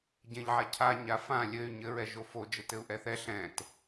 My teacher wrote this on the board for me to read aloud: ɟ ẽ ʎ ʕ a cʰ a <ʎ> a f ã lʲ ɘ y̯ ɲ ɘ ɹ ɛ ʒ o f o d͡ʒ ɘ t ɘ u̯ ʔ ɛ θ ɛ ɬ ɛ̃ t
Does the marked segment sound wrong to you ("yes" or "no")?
yes